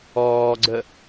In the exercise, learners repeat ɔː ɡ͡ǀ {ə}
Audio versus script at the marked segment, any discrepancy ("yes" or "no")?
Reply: no